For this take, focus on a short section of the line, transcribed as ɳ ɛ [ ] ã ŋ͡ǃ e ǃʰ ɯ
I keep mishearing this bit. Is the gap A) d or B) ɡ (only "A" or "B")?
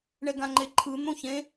B